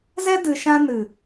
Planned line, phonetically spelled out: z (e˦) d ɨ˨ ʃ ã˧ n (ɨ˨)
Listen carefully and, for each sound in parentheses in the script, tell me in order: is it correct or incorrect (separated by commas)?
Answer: incorrect, correct